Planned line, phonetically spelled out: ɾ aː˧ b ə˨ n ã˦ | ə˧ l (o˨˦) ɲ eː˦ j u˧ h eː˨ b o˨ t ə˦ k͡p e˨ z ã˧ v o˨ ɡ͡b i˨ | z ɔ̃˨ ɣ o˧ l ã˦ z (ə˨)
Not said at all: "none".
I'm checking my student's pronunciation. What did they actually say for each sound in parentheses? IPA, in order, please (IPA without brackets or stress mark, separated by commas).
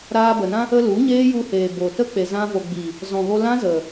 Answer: u˨˦, ə˨